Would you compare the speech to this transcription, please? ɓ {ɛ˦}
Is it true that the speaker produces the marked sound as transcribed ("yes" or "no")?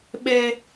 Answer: yes